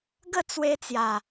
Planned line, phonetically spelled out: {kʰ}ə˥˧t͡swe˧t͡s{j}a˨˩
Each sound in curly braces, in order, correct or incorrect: incorrect: ɡ, correct

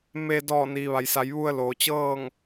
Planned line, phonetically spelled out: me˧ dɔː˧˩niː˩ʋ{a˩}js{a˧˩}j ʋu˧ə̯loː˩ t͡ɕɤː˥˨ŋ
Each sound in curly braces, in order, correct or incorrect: correct, incorrect: a˩˧

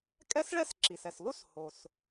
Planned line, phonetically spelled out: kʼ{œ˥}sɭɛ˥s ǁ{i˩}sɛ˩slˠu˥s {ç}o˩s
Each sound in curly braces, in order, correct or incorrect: incorrect: ɛ˥, correct, incorrect: h

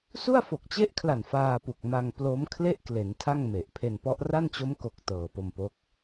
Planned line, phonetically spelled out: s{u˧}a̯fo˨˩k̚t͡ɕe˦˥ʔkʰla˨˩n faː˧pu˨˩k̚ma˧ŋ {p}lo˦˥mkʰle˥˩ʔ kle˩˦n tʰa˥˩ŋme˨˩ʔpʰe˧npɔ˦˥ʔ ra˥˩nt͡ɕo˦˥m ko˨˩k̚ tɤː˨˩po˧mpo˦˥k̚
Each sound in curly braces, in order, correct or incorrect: incorrect: u˥˩, correct

